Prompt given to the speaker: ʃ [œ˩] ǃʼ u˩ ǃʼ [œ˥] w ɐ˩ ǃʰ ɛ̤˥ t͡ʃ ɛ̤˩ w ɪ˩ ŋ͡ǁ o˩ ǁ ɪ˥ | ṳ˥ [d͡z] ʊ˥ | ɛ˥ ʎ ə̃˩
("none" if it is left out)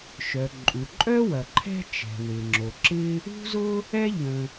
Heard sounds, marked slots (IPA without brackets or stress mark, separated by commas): œ˩, œ˥, z